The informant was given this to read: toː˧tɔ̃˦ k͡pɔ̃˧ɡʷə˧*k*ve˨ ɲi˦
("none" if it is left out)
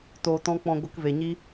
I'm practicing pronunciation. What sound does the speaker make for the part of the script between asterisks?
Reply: k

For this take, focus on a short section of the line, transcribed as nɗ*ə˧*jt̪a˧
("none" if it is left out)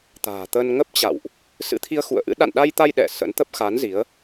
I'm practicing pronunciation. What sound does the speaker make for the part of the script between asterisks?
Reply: a˧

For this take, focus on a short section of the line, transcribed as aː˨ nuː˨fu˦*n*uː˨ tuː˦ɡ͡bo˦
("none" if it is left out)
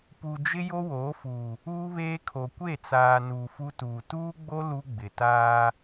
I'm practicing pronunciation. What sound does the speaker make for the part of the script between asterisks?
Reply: t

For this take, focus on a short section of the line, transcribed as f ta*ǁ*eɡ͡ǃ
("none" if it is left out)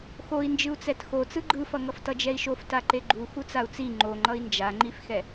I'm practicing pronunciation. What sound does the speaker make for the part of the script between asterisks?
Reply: ǃ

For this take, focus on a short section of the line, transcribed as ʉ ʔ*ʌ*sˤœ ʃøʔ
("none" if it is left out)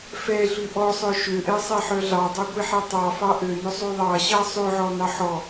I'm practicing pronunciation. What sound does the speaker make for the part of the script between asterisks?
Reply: ɔ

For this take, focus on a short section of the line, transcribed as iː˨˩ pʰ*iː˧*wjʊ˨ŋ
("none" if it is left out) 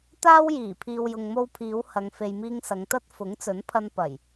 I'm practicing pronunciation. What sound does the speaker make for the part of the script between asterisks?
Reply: iː˨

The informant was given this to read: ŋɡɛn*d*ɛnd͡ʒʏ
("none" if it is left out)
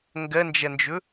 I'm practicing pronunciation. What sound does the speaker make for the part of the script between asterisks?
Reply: d͡ʒ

